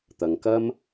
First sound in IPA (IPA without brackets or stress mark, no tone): t̪